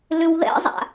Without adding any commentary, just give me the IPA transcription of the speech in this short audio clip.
l ʏ w ð ɛ̰ zˤ a̰

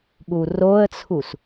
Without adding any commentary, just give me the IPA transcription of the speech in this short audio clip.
ɠ u r o ə̯ t͡sʰ u s

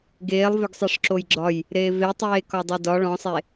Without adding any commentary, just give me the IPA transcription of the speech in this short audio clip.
ɡ eː lˠ v ʏ ɡ sˤ ɛ ʂ ǁ o j ɡ͡ǁ ɒ j | ɾ eː v e tˤ eː k ɒ dˤ e d ɒ ɭ ɔ̃ sˤ e

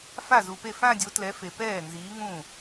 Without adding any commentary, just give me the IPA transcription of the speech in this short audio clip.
f a˥˩ z u˨ p e˥˩ f ã˥˧ dʲ o˨˥ t l ɛ˨˥ f e˨ p ɛː˥˩ n z iː˨˥ ŋ ũː˥˩

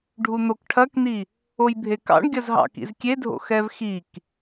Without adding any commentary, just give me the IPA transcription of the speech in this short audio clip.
ɖʱ u n̪ o k ʈʰ ɐ k n̪ i | o j bʱ e k ɑ̰ ɳ ɡʲ ɐ z ɦ ɑ̰ k ḭ z kʲ e dʱ o̰ x ɛ v x i k

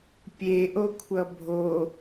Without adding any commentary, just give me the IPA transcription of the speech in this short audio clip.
pʲ e ʔ o kʷʰ ʌ bʱ o

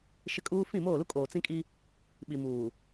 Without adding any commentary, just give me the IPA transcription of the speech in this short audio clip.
ʃ ɪ˦ kʼ uː˦ f ĩ˦˨ m oː˦˨ l u˦ kʼ oː˨ t͡s ĩ˦ kʼ i˦ | ɓ i˨ m uː˨

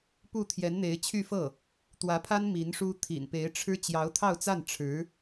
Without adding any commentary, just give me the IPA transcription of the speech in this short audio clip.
p u˥˩ t̪ʰ j ɛ˧˥ n n̪ e˧˥ ɪ̯ t͡ɕʰ y˥˧ f ɤ˥˩ | t̪ w ä˧˥ pʰ a˥ n m i˧˥ n ʂ u˥ t̪ʰ ḭ˨˩ n p e˧˥ ɪ̯ ʈ͡ʂʰ ɻ̩˥ t͡ɕ j ɑ˧˥ ʊ̯ t̪ʰ ɑ˥˧ ʊ̯ t͡s a˥˩ n ʈ͡ʂʰ ɻ̩˧˥

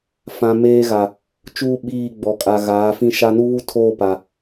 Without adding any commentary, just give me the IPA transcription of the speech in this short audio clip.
f ã˨ m eː˦ ɣ a˨ | t͡ʃ uː˦ ɓ iː˦˨ ɡ͡b ɔ˨ kʼ a˨ ɣ aː˨˦ f ĩ˦ ʃ a˦ n u˦ β u˦ tʰ oː˦˨ p a˨

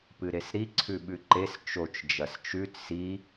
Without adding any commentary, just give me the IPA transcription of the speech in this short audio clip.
p ɨ ɾ e s ɾ i ǀʰ ʉ ɓ ʉ ǃ e s t͡ʃ o t͡ʃ d͡ʒ ɐ s t͡ʃ ʉ t s i

